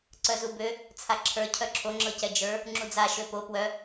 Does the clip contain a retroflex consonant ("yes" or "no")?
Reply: no